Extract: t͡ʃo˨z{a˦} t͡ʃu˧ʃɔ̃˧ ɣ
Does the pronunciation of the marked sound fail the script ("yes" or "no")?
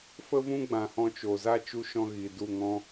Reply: no